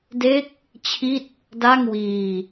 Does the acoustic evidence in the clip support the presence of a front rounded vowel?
no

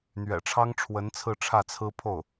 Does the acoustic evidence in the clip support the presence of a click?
no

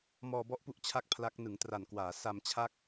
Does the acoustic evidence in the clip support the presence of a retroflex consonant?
no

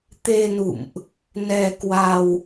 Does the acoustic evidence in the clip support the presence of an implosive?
no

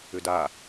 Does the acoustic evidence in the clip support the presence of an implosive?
no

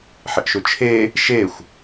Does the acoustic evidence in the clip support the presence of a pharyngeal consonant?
yes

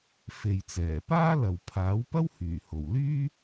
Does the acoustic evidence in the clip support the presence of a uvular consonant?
no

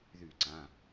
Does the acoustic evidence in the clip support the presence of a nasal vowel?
yes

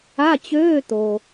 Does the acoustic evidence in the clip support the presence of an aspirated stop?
no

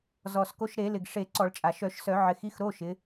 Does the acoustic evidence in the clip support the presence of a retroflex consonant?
yes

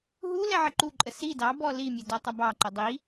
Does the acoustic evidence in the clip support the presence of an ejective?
yes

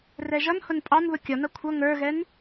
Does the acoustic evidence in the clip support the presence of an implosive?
no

